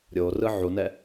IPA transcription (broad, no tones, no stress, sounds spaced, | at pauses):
ɾʲ o r ɯ ʕ u n ɛ